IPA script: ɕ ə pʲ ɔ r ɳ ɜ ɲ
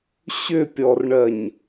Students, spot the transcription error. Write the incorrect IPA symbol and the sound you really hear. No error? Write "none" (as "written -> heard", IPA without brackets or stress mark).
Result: ə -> ʏ